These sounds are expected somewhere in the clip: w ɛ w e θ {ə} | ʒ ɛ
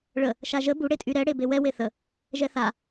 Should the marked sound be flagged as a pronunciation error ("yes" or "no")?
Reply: no